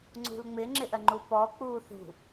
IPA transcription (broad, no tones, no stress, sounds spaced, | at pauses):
ŋ͡ǀ ṳ l ŋ͡m ɪ ŋ͡ǁ ɪ ʔ ɜ ŋ͡ǃ u p ɔ k͡p uː θ ṳ